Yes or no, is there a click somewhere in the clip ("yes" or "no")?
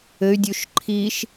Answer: yes